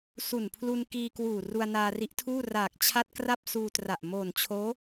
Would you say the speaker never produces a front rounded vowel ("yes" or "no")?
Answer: yes